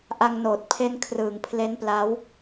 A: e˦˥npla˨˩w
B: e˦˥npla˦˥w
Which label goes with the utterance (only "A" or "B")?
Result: B